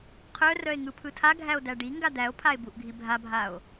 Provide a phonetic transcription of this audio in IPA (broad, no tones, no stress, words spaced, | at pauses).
qʰœrœe̯ ŋɯpʰɯtʰaɡʱæo̯ dæɖiŋɡa d̪æo̯pʰae̯ buʔɡʱibʱabʱao̯